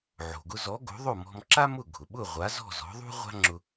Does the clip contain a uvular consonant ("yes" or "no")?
yes